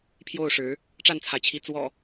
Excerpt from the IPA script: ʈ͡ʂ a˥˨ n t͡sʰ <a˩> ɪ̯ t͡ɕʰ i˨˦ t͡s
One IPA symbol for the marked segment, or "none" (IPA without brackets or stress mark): a˩